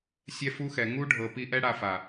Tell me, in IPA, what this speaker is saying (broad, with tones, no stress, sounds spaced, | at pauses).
sʲ ɛ˦ f u˦ x ɛ˨ ŋ u˦ ɖʱ ɤ˨ p i˧ ʔ ɛ˦ ɽ a˧ f a˨